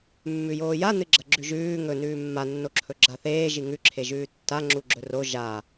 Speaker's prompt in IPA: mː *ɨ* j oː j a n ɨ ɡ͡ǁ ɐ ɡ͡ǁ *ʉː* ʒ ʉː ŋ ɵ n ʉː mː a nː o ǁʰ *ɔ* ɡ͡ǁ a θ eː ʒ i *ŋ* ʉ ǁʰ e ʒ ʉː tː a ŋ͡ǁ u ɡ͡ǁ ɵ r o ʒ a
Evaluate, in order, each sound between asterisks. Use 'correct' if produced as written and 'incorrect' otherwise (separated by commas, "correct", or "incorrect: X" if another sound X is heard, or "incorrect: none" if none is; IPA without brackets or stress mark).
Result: incorrect: ʉ, incorrect: ʉ, incorrect: ɵ, correct